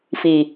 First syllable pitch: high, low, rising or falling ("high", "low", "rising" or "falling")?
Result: low